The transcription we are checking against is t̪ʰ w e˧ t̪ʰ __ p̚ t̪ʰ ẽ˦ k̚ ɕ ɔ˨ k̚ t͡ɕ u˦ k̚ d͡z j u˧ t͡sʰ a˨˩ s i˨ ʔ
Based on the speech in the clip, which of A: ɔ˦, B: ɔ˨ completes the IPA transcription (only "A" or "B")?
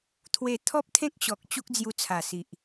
A